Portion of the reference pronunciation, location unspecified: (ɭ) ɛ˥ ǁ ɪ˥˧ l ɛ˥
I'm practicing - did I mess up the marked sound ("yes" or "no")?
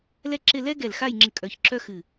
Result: yes